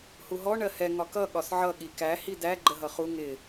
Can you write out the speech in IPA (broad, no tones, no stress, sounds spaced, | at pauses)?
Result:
h u ɦ ɔ ɳ ɜ h ɛ ŋ ɒ k ʌ ɠ ɒ s ʕ ʌ ɠ i k æ h i d æ ɡ͡ǃ ə ɦ ʌ χ u ŋ ɪ